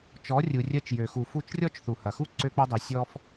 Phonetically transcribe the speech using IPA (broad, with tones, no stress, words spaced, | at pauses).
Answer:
t͡ʃɔ˨˦rʲu˨rʲɜ˧t͡ʃjø˨ xu˨fu˧t͡ʃrʲɔ˦t͡ʃ θu˨hɐ˨xu˦ ǀø˧k͡pø˧dˤi˨ sʲɔ˦f